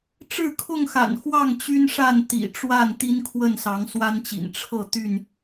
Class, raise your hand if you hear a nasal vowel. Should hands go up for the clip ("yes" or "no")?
no